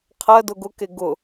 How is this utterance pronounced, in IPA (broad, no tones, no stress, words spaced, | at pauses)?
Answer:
qʰɜdʊ ɡʊke ɡʊ